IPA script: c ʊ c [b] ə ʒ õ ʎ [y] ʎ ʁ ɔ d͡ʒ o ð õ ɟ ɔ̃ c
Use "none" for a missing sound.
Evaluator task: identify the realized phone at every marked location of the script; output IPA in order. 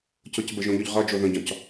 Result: b, y

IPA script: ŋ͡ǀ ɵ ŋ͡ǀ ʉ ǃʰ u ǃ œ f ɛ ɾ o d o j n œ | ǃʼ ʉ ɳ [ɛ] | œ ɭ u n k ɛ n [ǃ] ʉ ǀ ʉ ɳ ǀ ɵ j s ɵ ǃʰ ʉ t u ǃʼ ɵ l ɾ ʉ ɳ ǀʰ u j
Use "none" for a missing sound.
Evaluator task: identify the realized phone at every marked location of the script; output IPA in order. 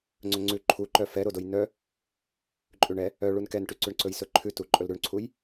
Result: ɛ, ʈ

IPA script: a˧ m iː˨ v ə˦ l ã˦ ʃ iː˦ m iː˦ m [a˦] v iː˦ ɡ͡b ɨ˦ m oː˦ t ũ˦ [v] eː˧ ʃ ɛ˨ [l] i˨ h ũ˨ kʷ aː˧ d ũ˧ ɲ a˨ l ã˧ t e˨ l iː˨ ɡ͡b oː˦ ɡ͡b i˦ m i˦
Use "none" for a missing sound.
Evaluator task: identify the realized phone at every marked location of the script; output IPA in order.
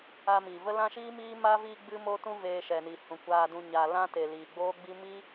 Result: a˦, v, n

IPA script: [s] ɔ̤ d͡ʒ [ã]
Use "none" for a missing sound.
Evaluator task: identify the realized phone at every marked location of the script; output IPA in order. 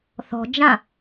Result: θ, ã

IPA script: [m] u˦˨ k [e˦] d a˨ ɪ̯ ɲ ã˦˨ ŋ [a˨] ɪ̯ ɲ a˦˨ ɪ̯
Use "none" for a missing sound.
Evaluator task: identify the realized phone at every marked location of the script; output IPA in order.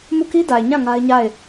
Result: m, i˦, a˦

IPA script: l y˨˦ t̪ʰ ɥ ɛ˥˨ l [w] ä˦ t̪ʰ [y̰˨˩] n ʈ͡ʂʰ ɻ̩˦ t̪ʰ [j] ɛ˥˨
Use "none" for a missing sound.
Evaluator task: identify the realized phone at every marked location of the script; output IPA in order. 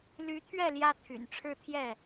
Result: j, y̰˨˩, j

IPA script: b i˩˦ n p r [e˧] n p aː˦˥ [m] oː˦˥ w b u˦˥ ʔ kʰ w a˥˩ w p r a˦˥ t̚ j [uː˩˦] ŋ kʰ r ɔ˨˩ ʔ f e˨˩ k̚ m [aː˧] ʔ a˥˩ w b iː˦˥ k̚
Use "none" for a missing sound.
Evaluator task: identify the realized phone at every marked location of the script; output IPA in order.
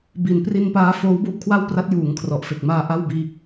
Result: i˧, f, uː˩˦, aː˧

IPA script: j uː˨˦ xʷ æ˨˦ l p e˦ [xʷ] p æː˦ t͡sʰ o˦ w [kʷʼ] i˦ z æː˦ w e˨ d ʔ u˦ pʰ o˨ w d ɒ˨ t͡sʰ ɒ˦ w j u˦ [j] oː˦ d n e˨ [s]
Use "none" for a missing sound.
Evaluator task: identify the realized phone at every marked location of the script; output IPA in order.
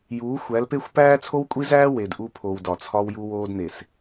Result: xʷ, kʷʼ, w, s

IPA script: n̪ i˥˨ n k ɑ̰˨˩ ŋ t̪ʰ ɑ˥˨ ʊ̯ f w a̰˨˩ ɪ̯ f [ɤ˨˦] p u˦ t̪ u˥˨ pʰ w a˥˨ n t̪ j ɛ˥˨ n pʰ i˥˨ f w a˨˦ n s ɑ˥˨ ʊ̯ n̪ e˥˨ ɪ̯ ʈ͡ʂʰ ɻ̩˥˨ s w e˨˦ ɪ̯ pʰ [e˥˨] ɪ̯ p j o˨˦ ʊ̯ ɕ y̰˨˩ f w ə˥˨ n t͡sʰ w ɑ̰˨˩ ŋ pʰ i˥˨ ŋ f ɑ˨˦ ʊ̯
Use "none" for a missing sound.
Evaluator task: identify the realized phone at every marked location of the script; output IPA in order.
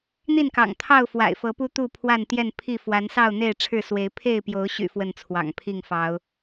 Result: ɤ˨˦, e˥˨

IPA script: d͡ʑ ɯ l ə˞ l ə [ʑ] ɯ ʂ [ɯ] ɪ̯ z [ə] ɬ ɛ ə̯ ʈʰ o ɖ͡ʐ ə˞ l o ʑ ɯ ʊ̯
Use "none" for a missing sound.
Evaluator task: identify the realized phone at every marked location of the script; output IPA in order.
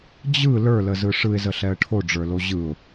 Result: z, ɯ, ə

